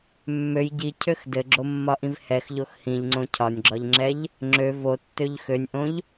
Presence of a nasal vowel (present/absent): present